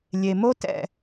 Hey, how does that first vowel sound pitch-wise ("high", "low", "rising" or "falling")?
low